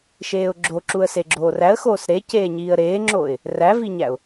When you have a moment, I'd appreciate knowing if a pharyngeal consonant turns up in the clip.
no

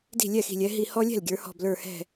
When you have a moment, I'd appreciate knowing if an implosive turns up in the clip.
no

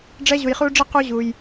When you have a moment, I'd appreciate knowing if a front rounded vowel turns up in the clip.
no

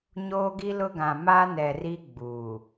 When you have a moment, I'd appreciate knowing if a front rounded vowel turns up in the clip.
no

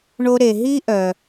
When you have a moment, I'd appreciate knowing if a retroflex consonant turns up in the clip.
yes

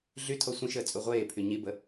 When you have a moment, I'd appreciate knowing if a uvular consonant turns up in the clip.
yes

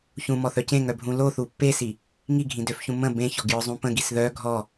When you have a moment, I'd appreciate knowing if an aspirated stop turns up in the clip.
no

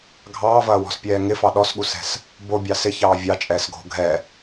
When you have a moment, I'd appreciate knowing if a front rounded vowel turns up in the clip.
no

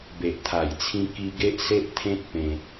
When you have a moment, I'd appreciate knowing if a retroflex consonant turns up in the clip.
no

